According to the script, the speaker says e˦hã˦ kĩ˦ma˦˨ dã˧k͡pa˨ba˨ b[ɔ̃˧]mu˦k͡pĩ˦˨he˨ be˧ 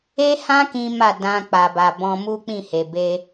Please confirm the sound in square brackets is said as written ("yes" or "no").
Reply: yes